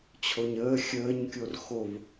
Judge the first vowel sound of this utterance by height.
mid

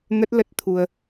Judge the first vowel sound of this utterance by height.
mid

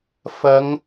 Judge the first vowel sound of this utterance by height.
low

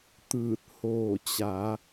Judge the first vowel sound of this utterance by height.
high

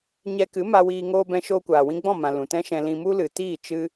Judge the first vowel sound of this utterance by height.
mid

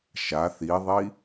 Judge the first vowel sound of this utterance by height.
low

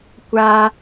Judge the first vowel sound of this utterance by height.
low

